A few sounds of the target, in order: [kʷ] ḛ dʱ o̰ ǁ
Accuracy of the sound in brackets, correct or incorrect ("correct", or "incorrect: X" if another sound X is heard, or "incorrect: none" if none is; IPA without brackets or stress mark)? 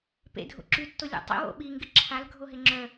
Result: incorrect: p